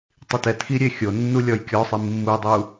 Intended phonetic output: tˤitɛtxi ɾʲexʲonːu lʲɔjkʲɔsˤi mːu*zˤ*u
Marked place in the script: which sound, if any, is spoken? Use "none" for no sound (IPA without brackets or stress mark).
dˤ